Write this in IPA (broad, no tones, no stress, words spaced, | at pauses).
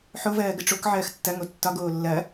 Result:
ħovɜːɡə ʈ͡ʂokʕɜːx tːɐŋo tːɒɡoː lːɐ